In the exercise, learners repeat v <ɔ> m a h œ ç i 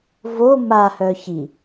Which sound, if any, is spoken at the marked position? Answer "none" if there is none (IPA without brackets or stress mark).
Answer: o